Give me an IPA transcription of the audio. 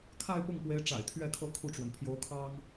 kʰa˥˧ɪ̯pʊ˥˩ŋpwe˧˥ɪ̯ ʈ͡ʂa̰˨˩ɪ̯t̪ʰɥɛ˥˩kʰɤ˥ kʰu˥˩ʈ͡ʂwə˩n pʰjo˧˥ʊ̯kʰɑ˥ŋ

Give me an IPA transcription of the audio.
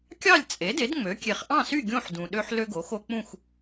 kʲɑ˥˨lʲ t͡sʼe˩˥de˩˥dŋ͡mø˩˥kʲe˨χ ʔɑ̃˥˨sy˥˨ ɡʲõ˥˨ħdũ˨ɗø˦ħ lø˦ɡo˩˥xo˦k͡pũ˥˨x

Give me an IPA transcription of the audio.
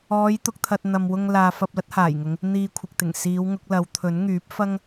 ɔː˨˧jt̪ʊ˨k̚t̪ʰɐ˨t̚ n̪ɐ˨mwʊ˧ŋ laː˨ fɐ˧p̚lɐ˥t̚ haː˨˩jŋʊ˨˧ŋ | n̪iː˧kʷʰɪ˨k̚t̪ɪ˨˩ŋ siː˨˧wŋʊ˨˥k̚lɐ˨˧w t̪ʰɵ˨˥nŋyː˨˥p̚fɐ˥ŋ

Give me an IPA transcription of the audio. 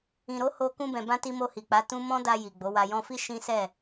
ĩ˨ɾo˨˦ ho˦ kũ˧bɛ̃˨bã˧ ti˧ mo˧hi˨k͡pa˨˦ tũ˦ mɔ̃˦da˧ ji˨ɡ͡bo˨˦wa˧ jɔ̃˧fi˦ ʃĩ˦sɛ˦˨

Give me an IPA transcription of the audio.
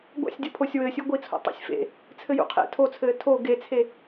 ɡʷa̰sʲdʲɔpʰosʲ wɘːsʲu ɡʷit͡sʰo̰ tˤo̰sʲfḛ | t͡sʰɘjṵqʰḛ tʰot͡sʰɘː tʰo ɡet͡sʰe

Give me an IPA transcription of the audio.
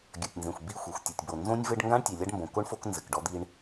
ɡʲɐ˨tʲnzẽ˨xʷ bi˦˨xʷɛ˨xʷ tʲɘ˨tʲbo˨ nzõ˦nʲvɘ˦ɖ ŋɡã˦ɳ tʲe˨lʲa˦ɖmbõ˨ ko˦ɳ fo˦k nzɘ˨kɖɔ˦d̪i˦ɳ

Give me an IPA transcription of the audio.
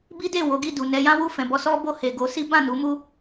bi˦de˦˨ wo˨˦ɡi˦˨du˨nɛ˧ jã˦wu˦˨fɛ̃˨ bɔ˧ sɔ˦ bo˦˨he˨ɡo˨˦ si˦bã˦˨nu˨˦mu˦

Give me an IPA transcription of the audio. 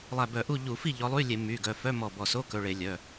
lˠæ˧˩bœ˧˩˧ʔu˥˩ ʎu˧˩˧fi˥˩ ʎɔ˨˦lˠy˧˥˧lʲe˧˩˧ my˩˧˩ɡœ˩˧˩ fœ˧˥˧mɔ˧˩bɔ˧˩ so˧˥˧kɵ˩˧˩ ɭe˧˩˧lʲœ˩˧˩

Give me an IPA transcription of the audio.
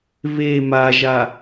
βe maʒa

